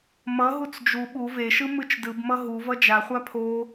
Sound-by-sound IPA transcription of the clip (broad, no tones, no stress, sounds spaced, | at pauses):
m ʌ ɦ u t͡s d͡ʒ u ɓ u v e ʃ ɯ m ɯ t͡ʃ d ɯ b m ʌ ɦ u v ʌ d͡ʒ a χʷ a pʰ o